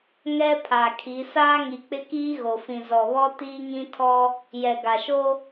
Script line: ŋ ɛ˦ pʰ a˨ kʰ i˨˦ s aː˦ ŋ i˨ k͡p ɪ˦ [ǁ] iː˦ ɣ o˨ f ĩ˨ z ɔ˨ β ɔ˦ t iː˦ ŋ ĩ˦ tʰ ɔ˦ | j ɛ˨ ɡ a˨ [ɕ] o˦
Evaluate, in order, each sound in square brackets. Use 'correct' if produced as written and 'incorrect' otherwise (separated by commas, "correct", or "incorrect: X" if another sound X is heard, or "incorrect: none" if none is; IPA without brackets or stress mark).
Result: incorrect: k, incorrect: ʃ